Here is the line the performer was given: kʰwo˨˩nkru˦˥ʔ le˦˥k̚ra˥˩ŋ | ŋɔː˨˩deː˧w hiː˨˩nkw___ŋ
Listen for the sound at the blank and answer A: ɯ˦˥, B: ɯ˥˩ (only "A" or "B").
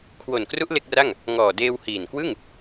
B